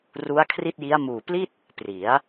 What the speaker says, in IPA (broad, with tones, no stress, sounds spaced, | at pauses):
r u˦˥ a̯ kʰ r i˥˩ t̚ j i˦˥ a̯ m uː˨˩ p l i˥˩ t̚ | p r i˩˦ a̯